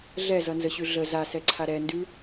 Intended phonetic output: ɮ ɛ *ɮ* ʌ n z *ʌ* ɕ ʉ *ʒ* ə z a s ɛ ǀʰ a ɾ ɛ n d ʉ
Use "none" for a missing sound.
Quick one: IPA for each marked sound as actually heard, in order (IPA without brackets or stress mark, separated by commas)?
z, ə, ɮ